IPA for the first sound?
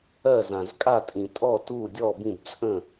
ɜ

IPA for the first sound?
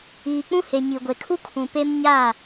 iː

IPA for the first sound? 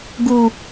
ɡ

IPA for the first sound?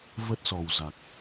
v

